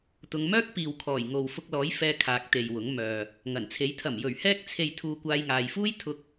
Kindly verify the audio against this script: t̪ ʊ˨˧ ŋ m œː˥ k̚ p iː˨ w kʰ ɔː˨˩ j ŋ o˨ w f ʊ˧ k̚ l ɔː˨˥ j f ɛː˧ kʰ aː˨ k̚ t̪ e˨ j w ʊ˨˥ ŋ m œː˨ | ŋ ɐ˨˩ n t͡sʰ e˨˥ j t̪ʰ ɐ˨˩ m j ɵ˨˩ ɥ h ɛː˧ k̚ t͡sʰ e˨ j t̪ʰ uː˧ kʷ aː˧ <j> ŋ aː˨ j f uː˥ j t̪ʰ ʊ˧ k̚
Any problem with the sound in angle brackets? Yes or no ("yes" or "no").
no